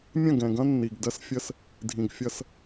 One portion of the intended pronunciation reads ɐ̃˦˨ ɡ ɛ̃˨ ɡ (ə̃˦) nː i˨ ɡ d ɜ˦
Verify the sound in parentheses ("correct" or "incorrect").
incorrect